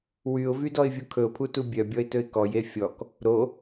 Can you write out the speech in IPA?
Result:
wyʊ̯vydɔɪ̯vʲu kʰɵʊ̯pʰutu bʲœbʲɔɪ̯tɵɪ̯ kɔje fʲɔk | ɾo

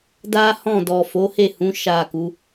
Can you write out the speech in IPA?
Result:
da˦hɔ̃˦˨ dɔ˨fo˨˦he˦˨hũ˨˦ ʃa˦˨ku˨˦

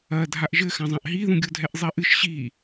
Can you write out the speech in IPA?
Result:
ɐdʱaʔ ʒɘ xãzˤãʔɦiðũ ɡʲodʱɛʔzˤiʔɨʃ ɕi

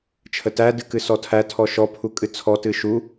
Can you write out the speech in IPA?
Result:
t͡ʃʰətæ dɨkɨsɔtʰæ tʰɔʃɔ pʰukʼɨt͡sʰɔ tɨʃu

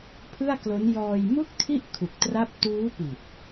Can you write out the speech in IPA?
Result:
pʰɯ˥˩a̯klo˦˥n jɔː˧jmu˥˩k̚ tʰi˥˩ʔ kʰu˨˩k̚tra˦˥p̚ tuː˦˥pi˨˩t̚

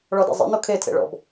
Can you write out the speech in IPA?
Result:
ɭɔdɛ̰zˤḛno kʰetʰḛ ɭɔ̰b

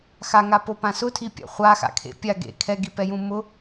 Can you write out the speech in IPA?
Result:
xaŋapopã sʊtʰipʲa̰ χʷaxa̰kʰḛ pʲa ɡḛ kʰɛɡipɛjũ mʊ

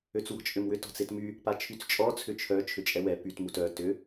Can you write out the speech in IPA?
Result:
øt͡swɔ̤t͡ʃʼʏmwʏ tɔ̤t͡setmy | pat͡ʃʰyt͡st͡ʃʼɔ t͡sʰʏt͡ʃʰœ t͡ʃʰʏt͡ʃʼɛwɛ pyt mutœ tʏ

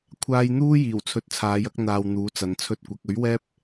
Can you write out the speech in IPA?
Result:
kʷʰaː˥j n̪uː˥jiː˨˩w t͡sʰɵ˧t̚t͡sʰaː˨˧jɐ˥k̚n̪aː˨w n̪uː˨˥t͡sɐ˨˩nt͡sʰɵ˥t̚kʷɐ˨˥k̚ ɵ˨˥ɥwɛː˥p̚

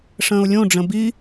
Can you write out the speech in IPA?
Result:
ʂə̃ːʊ̯lʲõɖ͡ʐə̃ bi

